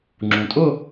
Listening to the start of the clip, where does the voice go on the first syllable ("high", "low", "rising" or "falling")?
low